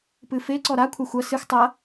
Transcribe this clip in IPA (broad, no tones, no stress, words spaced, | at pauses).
pɨfe ǀɔɾa kʷʰaxʷɐ sɨx tˤɐ